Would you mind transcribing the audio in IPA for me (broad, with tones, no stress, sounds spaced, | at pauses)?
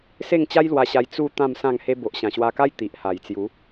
s e˥˧ ŋ t͡ɕ a˦ j l w a˧ ɕ a˧ j t͡s u˥˧ t̪ ã˥˧ m s ã˥˧ ŋ h e˦ b o˨ ʔ ɕ ã˨˩ ɕ w a˧ k a˦ j t̪ i˨ ʔ h a˨˩ j t͡s j u˨˦